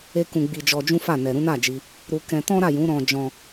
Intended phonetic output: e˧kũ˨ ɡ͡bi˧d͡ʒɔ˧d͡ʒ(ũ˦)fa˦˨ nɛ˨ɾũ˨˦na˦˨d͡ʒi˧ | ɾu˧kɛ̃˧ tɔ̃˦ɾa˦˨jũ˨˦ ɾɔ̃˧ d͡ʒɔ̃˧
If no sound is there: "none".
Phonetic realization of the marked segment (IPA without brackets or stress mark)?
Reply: ũ˦